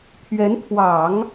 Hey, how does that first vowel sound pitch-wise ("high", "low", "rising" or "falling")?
rising